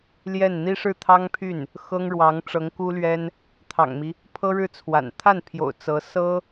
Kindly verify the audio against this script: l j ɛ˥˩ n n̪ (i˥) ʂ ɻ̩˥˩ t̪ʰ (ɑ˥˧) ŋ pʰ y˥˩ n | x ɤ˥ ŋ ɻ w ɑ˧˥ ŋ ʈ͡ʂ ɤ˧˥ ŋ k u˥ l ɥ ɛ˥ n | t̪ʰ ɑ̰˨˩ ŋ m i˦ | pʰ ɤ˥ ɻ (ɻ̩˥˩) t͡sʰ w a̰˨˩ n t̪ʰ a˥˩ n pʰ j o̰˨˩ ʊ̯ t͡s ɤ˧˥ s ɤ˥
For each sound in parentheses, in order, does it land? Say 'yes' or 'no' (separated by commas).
yes, no, yes